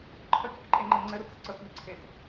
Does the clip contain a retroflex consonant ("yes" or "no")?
no